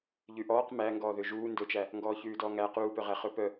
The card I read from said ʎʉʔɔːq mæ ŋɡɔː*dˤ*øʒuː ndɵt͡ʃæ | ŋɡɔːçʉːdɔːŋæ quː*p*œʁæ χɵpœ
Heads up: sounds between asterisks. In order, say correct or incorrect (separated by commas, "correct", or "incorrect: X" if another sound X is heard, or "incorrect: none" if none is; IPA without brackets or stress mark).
incorrect: ð, correct